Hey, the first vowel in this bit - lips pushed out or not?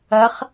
no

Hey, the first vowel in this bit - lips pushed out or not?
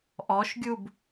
yes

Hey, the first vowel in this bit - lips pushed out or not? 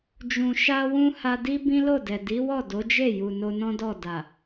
yes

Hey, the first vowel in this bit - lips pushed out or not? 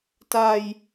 no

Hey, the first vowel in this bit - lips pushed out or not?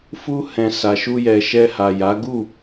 yes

